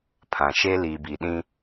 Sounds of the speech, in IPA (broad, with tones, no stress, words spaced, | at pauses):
pʰã˨ʃe˦ liː˨bi˨ɗĩ˦